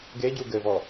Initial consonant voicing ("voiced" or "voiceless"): voiced